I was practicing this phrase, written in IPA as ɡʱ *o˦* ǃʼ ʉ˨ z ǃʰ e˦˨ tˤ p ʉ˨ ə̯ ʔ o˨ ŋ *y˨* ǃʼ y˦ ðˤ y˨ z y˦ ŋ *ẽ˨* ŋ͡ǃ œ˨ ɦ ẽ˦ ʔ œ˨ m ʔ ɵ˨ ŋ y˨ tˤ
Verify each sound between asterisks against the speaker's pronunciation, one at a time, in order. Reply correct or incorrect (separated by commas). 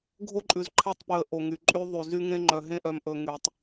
correct, correct, incorrect